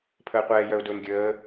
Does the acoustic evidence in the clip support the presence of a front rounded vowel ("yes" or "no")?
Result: yes